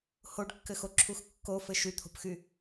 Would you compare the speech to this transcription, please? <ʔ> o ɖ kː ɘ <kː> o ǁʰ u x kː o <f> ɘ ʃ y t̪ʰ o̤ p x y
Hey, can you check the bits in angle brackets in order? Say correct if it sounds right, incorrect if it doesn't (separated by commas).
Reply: incorrect, incorrect, correct